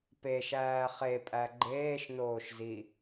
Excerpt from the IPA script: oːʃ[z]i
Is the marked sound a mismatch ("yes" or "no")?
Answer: no